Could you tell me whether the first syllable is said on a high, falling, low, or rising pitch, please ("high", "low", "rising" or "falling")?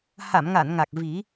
low